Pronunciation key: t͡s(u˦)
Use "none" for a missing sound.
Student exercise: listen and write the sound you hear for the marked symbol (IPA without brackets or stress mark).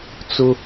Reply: ʊ˦